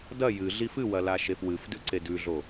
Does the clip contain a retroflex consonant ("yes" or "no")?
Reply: no